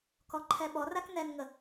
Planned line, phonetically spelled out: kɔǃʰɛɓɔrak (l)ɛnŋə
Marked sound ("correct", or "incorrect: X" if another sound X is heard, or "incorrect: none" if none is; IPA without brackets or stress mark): incorrect: n